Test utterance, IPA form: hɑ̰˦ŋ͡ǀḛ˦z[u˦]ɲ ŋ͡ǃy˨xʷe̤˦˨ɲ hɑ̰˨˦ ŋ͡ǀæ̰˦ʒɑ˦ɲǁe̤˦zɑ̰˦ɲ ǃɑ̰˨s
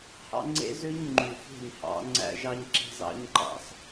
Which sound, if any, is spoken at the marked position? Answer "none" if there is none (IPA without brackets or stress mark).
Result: ø˦